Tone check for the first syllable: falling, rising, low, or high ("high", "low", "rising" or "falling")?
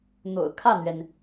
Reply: low